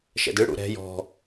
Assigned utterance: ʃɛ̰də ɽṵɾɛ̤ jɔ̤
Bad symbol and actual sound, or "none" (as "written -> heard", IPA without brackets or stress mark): ə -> ɯ